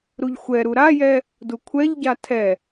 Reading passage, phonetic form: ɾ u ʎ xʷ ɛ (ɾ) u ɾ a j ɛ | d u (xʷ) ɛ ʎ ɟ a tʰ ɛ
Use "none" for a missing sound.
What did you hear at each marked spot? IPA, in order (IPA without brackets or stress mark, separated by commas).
ɾ, kʷʰ